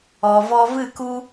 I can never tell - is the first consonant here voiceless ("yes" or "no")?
no